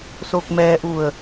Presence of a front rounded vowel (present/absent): absent